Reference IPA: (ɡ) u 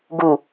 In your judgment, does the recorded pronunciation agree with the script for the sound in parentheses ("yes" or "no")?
yes